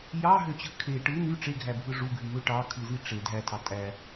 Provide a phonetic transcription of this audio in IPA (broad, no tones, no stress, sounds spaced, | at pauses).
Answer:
j ɑ ɦ ø t͡ɕ ɯ kʰ e ʈ ɯ n y ʈ͡ʂ e ɡʱ æ bʱ ɯ ʐ u ɡʱ y m ø ʈ ɑ kʰ ɯ z i ʈ͡ʂ e dʱ æ tʰ ɑ tʼ æ